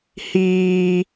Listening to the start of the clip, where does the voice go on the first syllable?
high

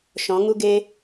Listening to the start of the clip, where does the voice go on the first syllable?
rising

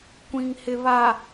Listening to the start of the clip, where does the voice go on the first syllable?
low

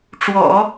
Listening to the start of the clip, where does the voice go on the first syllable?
low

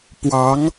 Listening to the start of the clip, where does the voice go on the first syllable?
rising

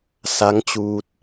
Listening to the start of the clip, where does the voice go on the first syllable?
rising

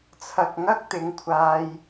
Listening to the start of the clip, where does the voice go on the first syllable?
low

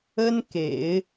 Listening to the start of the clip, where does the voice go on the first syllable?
high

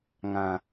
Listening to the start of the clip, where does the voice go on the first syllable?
low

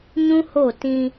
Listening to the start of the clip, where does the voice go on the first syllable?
high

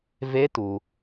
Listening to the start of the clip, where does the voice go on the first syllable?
rising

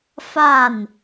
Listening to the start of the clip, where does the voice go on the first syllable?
falling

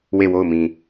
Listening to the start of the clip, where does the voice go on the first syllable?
falling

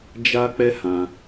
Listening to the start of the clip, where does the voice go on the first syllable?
high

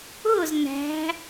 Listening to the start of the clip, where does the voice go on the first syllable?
falling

